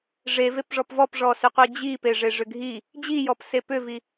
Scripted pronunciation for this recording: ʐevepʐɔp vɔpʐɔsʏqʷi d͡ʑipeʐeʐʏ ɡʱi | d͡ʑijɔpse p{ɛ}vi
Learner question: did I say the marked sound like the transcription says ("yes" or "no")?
no